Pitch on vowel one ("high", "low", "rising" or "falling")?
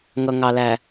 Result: low